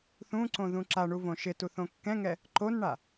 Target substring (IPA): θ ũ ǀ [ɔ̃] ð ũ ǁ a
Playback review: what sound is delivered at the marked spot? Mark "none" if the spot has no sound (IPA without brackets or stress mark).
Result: õ